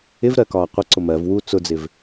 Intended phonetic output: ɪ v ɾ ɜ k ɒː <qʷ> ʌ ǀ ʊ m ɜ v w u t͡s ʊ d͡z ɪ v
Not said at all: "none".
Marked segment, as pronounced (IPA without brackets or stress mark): qʷ